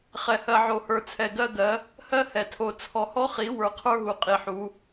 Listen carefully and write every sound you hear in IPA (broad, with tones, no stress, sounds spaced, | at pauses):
χ ɛ˨ h ɜ˨ ʕ o˨ h ə˞˨ t͡sʰ ɛ˨ ɡ ɜ˦ ɡ ɜ˨˦ | h ɜ˦ h ɛ˨ tʰ o˨ t͡sʰ ɔ˨ h ɔ˦ χ i˨˦ w ə˞˨ qʰ ə˞˦ ɦ u˨ qʼ i˨ ħ u˨˦